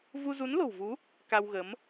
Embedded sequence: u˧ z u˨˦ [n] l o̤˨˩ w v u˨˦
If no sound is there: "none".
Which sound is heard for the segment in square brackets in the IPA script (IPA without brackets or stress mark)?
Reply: n